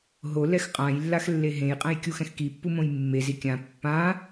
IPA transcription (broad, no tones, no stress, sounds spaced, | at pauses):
ɦ o l ɛ x qʼ ã j lː a x lː e ɦ ẽ j qʼ ɛ̃ j kʲ u x ɛ̃ x k i pː u m õ j mː e z i kʲ ã pː ã